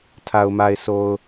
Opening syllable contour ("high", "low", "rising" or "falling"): low